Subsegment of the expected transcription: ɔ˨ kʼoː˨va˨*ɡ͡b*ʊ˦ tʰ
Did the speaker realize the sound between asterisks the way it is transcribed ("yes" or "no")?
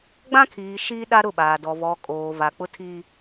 no